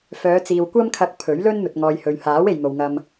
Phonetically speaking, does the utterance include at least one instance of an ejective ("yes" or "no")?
no